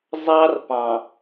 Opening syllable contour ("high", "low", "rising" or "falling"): high